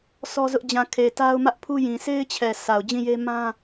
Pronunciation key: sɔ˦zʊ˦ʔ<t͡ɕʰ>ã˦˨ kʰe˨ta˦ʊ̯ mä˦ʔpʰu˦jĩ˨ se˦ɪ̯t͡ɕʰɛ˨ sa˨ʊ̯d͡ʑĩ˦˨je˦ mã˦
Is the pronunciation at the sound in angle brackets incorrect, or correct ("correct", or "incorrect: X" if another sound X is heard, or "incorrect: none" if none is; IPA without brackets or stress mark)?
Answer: incorrect: d͡ʑ